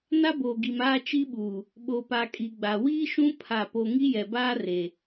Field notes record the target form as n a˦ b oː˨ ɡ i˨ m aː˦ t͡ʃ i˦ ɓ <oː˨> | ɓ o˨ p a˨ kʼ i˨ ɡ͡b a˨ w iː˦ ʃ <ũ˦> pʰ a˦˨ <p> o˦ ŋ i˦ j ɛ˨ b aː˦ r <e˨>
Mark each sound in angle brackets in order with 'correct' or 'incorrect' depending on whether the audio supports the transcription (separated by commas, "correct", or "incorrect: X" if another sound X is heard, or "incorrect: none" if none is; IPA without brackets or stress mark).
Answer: incorrect: uː˨, correct, correct, correct